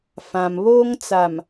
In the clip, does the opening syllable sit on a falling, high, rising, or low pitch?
low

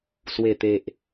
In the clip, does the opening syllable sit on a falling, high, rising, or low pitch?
low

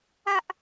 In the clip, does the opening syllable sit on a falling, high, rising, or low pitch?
high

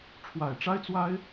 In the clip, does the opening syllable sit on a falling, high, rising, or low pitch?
low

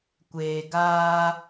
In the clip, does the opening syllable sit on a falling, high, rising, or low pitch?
low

